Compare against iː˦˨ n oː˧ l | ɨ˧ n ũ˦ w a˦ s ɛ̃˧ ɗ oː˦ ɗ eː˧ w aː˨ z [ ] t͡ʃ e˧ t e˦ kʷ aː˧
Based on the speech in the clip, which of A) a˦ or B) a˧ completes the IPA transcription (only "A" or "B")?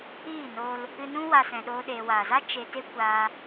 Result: A